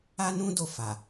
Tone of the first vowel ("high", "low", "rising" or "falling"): high